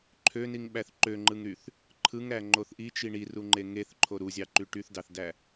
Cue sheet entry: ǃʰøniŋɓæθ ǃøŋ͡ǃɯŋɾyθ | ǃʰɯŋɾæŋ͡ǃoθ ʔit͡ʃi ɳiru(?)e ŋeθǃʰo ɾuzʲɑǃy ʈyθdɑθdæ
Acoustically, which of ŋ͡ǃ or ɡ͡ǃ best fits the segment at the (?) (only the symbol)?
ŋ͡ǃ